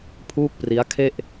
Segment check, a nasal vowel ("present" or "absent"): absent